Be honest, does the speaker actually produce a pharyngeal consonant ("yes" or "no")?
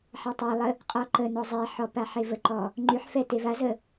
yes